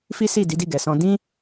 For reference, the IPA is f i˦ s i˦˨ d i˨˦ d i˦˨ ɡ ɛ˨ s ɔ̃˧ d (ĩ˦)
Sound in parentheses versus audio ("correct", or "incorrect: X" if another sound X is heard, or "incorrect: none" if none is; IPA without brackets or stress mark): correct